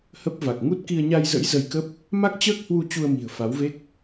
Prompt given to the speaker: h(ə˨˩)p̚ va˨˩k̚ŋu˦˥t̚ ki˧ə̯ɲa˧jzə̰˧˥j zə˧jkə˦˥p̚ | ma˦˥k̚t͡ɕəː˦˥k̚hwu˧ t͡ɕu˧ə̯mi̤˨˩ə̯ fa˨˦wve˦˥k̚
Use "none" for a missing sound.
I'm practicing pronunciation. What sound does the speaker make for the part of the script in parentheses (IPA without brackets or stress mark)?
ə˦˥